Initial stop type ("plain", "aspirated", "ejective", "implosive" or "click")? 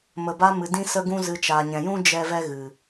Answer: plain